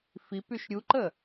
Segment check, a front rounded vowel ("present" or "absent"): present